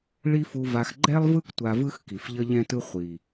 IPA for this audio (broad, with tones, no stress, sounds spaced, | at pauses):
ɭ i˦ f u˧ v a˧ x ɡ͡ǃ ɛ˦ lˠ v ɯ˦ k tʷ a˧ v ɯ˦ x k i˨ f ʎ ʌ˦ ʎ ɛ̃˦ t ɯ˦ χʷ i˨